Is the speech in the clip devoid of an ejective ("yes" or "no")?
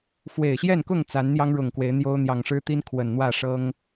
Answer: yes